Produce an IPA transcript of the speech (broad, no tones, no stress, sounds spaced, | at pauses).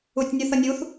u tʲ nʲ u θ ʌ nʲ u θ